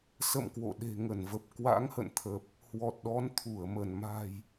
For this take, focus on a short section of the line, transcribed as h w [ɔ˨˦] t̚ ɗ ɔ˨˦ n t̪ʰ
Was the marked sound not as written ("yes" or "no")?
yes